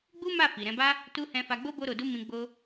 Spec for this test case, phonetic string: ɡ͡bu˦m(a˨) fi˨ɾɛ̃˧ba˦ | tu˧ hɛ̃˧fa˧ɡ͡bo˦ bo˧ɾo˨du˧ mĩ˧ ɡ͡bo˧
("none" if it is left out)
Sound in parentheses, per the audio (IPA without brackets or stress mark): a˦˨